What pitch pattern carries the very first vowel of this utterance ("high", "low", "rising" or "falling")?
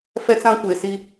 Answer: high